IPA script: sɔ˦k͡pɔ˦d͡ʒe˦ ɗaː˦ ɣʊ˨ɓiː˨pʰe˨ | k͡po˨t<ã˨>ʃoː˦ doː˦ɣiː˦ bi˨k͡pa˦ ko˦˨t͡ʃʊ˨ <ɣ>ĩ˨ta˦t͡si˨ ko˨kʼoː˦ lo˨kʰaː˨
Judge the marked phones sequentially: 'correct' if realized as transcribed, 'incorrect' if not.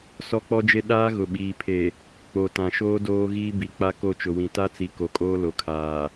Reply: correct, incorrect: w

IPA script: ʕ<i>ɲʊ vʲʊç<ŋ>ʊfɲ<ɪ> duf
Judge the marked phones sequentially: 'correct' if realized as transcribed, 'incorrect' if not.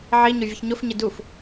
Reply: correct, incorrect: ɲ, correct

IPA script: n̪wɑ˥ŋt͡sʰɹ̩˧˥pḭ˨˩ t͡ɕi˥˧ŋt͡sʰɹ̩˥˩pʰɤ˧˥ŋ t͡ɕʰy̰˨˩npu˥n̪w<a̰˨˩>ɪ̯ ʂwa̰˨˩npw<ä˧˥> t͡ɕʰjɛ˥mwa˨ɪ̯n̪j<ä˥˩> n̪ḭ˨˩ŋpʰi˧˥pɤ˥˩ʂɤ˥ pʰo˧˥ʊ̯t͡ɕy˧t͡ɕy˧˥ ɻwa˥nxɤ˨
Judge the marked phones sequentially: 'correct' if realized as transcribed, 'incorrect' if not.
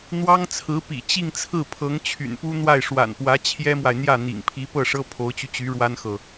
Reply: incorrect: a˥˩, correct, correct

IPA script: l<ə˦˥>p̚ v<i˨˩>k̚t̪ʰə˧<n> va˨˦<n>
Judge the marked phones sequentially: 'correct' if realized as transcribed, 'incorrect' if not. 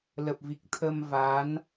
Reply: incorrect: ə˨˩, correct, incorrect: m, correct

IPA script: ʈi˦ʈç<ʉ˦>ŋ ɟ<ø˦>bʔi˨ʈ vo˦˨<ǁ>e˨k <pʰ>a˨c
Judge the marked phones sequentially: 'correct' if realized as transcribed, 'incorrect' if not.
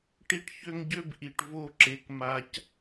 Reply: incorrect: ø˦, correct, correct, incorrect: m

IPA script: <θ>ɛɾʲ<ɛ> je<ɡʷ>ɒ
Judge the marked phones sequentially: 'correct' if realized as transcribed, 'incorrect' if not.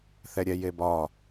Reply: correct, correct, incorrect: b

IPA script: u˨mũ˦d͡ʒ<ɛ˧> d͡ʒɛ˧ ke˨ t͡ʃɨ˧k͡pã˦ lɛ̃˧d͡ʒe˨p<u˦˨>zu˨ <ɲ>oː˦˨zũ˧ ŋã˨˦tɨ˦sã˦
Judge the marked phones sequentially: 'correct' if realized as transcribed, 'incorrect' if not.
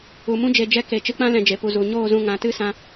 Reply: incorrect: e˧, incorrect: u˨, correct

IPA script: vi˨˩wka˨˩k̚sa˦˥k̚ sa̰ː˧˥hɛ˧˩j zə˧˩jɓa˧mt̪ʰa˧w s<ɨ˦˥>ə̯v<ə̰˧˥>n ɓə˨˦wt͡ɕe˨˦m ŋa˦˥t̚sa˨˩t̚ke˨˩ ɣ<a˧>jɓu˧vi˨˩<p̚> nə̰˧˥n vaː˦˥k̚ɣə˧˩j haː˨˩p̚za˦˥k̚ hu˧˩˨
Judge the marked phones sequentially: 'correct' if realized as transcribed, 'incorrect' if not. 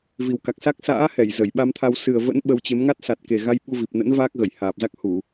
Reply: incorrect: ɨ˨˩, correct, correct, correct

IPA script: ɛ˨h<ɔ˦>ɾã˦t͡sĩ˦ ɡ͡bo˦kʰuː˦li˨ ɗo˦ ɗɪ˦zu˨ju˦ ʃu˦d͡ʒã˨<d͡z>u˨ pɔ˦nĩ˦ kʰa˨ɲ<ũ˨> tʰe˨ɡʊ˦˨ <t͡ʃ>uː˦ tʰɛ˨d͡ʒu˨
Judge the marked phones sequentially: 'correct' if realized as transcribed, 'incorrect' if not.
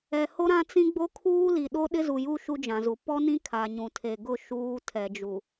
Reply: incorrect: o˦, incorrect: z, correct, incorrect: ʃ

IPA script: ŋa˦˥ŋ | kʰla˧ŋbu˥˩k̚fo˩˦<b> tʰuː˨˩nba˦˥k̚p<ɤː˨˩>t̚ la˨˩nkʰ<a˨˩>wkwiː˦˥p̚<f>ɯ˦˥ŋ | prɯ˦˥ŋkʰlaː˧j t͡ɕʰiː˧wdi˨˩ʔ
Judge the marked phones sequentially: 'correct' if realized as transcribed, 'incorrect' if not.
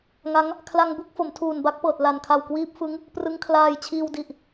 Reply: incorrect: m, correct, correct, correct

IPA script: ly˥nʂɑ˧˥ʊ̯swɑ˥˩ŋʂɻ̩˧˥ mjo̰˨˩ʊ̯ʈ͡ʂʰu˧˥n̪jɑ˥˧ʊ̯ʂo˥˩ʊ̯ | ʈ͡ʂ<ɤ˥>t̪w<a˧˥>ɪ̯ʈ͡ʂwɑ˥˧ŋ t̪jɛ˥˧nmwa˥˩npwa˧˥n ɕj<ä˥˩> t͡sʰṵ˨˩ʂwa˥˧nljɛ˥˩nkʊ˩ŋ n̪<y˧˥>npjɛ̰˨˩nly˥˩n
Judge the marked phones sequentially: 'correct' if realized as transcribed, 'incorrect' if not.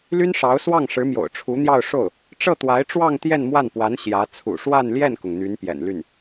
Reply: incorrect: ɤ˥˩, correct, incorrect: ä˧˥, correct

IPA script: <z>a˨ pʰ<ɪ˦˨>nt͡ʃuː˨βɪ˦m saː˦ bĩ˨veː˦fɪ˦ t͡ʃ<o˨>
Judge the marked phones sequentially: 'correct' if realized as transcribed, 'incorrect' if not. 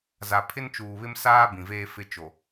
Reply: correct, incorrect: ɪ˦, correct

